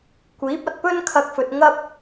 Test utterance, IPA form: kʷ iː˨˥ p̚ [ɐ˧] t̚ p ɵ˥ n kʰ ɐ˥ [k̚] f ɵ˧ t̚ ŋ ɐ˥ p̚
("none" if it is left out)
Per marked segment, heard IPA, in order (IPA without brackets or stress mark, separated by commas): ɐ˧, k̚